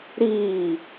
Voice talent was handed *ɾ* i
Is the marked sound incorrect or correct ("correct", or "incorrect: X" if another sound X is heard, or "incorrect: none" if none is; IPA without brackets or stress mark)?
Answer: correct